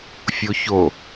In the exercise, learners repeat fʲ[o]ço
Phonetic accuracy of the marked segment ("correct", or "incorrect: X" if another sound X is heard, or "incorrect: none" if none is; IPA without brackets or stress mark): correct